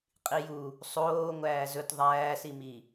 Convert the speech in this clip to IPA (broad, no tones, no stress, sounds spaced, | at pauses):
qʼ i j u | sˤ oː ŋʷ æː z ɵ t ðˤ æː s i m i